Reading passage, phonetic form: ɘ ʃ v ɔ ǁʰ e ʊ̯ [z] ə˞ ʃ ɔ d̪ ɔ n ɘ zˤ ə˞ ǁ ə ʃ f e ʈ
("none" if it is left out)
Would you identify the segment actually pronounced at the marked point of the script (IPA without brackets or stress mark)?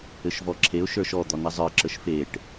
ʃ